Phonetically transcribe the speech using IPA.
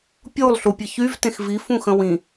pʲ u lˠ ɬ u pʲ ə ç y v t ẽ x v i f ũ x ə̃ w ĩ

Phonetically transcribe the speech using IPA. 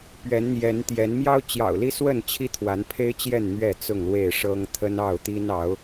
p ɥ ɛ˨˦ n n̪ j ɛ˨˦ n t̪ j ɛ˨˦ n m j ɑ˦ ʊ̯ t͡ɕ j ɑ̰˨˩ ʊ̯ l i˦ s w ə˥˨ n t͡ɕʰ i˦ t̪ʰ w a˨˦ n pʰ e˦ ɪ̯ t͡ɕ j ɛ˥˨ n n̪ ɥ ɛ˥˨ t͡s ʊ˥˨ ŋ l w e˥˨ ɪ̯ ʂ ɤ˦ ŋ t̪ʰ ə˦ n ɑ˥˨ ʊ̯ t̪ i˦ n ɑ˨˦ ʊ̯

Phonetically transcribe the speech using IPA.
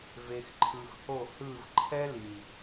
v e˨ x ǃʰ ɯ˨ x h o˦˨ h ɯ˦˨ v ǃʰ ɛ˦ l i˨

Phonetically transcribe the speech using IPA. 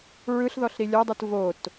ɹ ɯ ɬ ð ɔ ɬ ɾ i lʲ ɔ dˤ ɯ t v o t

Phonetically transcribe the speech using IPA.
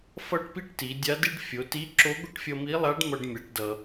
f ʌ˥ ʈ p i˥ ʈ t i˩˧ dʲ a˧˥ d i˥ ɖ fʲ o˩˧ t i˧˥ ǁ o˧˥ ɡʷ ə˥ ʈ fʲ ʌ˧ m i˧˥ lˠ a˧˥ ɖ m ʌ˧ ɖ mʲ a˩˧ ʈ d ʌ˩

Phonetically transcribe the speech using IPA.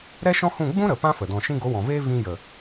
ɾ ɛ˦ ʃ ɔ̃˦ h ũ˦˨ ɡ͡b ũ˦ ɾ ə˨ p ã˦ f ə˨ d ɔ̃˨ ʃ ĩ˧ ɡ o˨˦ w ɔ̃˨ v eː˦ v ĩ˧ j ə˨

